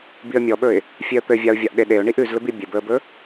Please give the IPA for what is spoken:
b i ə̯ mʲ ɔ ɓ ɵ ɪ̯ | fʲ e ə̯ t̪ ɘ vʲ a ʊ̯ vʲ a ʔ ɗ e ɗ e ʊ̯ ɳ i ʔ ʉ z l ɵ b i bʲ ɘ b ɵ ə̯ b ɵ

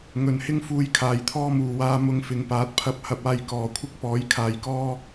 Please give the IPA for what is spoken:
ŋ ɵ˨ n h ɪ˥ ŋ f uː˧ j kʰ aː˨ j t̪ʰ ɔː˥ m uː˨ w aː˧ m ʊ˧ ŋ f ɪ˨˥ ŋ p aː˨˥ t̚ pʰ ɐ˧ p̚ h ɐ˧ p̚ aː˧ j k ɔː˨ kʷʰ ɪ˥ k̚ p ɔː˨˥ j kʰ aː˨˧ j k ɔː˥

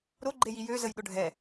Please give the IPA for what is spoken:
ɾ o ɡ͡ǃ e j i j ø z ə j ɗ ʊ ɖʱ ɛ

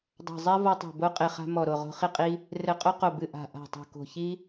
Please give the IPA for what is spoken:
dˤ a̤˧˩ zˤ ɛ˦ v ɔ˦ tˤ o̤˧˩ b o˦ qʼ e˧˩ χ a̤˦ m ɔ˧˩ ɾ o˧˩ ʁ o̤˦ χ i˦ qʼ i˦ | r ɘ˧˩ qʼ o˦ q o˧˩ b ɨ˧˩ ʔ a̤˧˩ ʔ a̤˧˩ tˤ o̤˧˩ k o̤˧˩ ç i˦

